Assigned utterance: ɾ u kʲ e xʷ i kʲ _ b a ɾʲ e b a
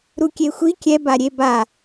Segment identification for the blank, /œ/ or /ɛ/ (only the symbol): ɛ